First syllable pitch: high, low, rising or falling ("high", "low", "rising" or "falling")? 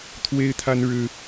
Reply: high